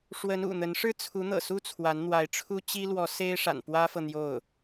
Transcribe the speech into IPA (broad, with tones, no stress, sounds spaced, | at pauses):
ʂ w ə˧˥ n ṵ˨˩ n̪ ə˧˥ n ʂ ɻ̩˥ t͡sʰ u˧˥ n̪ ɤ̰˨˩ s u˥ t͡sʰ w a˧˥ n n̪ w a˧˥ ɪ̯ ʈ͡ʂʰ u˥ t͡ɕ i˥ l w ɔ˧˥ s e˥ ɪ̯ ʂ a̰˨˩ n p w ä˥ f ɤ˨ n̪ j o˥˩ ʊ̯